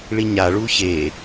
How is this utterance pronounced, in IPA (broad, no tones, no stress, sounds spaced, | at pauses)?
ɭ i ɲ a ɭ u ç e